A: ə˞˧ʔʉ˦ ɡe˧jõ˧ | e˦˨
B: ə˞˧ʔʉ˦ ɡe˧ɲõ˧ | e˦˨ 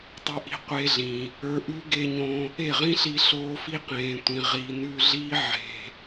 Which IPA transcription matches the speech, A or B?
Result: B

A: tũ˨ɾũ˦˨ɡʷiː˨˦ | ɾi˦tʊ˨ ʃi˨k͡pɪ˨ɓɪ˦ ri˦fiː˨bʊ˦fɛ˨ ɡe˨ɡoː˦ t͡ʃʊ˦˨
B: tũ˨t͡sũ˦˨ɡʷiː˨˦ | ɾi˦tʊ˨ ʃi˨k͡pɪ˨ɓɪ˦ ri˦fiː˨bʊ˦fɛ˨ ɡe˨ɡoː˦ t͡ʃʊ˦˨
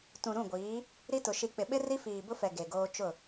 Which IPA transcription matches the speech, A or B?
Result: A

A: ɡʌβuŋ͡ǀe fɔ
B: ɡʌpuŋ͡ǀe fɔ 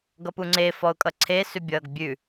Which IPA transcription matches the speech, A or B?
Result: B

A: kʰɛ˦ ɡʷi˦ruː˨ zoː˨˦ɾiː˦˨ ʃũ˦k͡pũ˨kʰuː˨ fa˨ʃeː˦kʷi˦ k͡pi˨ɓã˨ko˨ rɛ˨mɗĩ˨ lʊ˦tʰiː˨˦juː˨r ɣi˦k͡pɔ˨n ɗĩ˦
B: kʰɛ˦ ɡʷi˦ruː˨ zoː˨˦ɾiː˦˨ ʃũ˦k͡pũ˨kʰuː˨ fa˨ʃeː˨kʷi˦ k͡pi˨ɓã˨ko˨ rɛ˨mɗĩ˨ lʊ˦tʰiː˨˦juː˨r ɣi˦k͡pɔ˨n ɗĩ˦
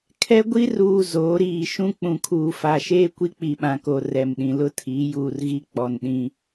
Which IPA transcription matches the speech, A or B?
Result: A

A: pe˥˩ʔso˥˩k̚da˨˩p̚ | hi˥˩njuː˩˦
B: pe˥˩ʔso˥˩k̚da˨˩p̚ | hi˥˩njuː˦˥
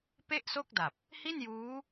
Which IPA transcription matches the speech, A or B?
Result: B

